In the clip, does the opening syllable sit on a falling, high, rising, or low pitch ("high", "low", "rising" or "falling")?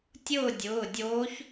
falling